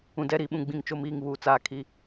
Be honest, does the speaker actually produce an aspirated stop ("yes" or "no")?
yes